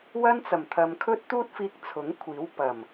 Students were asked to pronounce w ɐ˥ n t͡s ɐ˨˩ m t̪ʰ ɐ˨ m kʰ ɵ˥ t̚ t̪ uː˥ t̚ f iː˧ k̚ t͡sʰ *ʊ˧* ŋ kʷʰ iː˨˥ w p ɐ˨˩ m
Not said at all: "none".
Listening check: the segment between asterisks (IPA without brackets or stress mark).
ʊ˨˥